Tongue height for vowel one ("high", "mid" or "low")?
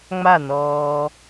low